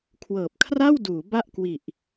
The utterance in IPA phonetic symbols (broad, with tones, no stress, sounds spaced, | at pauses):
kʰ w ɤː˨˩ p̚ kʰ r a˥˩ w d uː˩˦ b a˥˩ ʔ k w i˨˩ ʔ